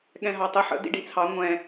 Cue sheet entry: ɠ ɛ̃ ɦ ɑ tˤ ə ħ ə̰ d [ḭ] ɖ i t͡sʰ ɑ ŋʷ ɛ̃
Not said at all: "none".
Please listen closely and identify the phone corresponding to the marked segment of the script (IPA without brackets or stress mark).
ḭ